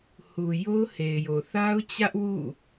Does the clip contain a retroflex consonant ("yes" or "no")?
no